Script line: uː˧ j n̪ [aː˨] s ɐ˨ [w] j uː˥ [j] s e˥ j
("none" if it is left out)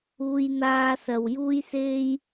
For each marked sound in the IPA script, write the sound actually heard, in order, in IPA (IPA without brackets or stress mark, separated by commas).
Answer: aː˧, w, j